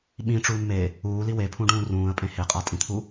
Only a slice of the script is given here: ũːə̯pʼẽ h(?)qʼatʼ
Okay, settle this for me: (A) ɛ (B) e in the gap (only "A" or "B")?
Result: B